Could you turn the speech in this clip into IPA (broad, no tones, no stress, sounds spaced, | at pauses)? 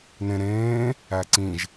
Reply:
n ẽ ɾ ẽː | æ ǀ ĩ ʒ